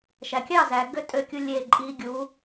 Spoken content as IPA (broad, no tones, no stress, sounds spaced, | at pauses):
ʃ æ kʲ ɑ z æ ɡ ø tʼ ø kʲ u lʲ e ǃʼ i ɡʲ u